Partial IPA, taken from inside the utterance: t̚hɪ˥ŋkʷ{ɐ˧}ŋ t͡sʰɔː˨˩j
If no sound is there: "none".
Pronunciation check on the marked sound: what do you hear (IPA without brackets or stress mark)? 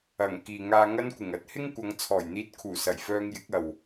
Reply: ɐ˨˧